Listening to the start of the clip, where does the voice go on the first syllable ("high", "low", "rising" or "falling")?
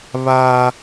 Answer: high